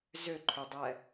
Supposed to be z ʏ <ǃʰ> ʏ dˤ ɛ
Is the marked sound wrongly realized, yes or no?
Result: no